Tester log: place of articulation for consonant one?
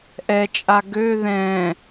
glottal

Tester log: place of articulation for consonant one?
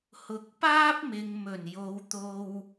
glottal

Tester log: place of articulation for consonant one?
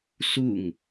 alveolar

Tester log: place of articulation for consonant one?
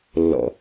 alveolar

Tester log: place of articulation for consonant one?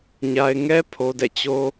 palatal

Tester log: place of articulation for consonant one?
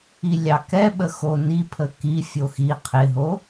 alveolar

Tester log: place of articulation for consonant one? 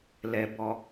alveolar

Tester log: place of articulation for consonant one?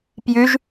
labial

